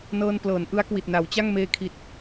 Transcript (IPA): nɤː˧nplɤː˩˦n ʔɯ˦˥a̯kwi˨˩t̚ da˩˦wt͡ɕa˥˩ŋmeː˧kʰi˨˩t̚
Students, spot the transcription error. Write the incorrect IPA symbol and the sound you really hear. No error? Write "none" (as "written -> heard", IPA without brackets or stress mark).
d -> n